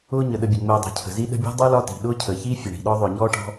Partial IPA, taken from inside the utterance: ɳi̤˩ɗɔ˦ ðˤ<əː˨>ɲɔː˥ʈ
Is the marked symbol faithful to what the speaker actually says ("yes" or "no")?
no